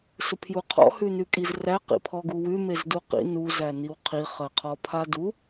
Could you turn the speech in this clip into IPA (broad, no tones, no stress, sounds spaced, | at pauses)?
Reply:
s ʊ pʰ j u qʰ ɔ̰ h ʉ n ʉ kʼ i z r æ q ḭ pʰ ɔ ɡ u w ʉ m e z d u q ḭ n u z æ n i w qʰ i χ ɜ qʰ ɔ pʰ a d u